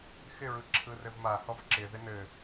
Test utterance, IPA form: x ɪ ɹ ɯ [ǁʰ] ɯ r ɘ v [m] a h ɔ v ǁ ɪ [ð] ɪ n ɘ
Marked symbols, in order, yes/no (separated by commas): yes, yes, yes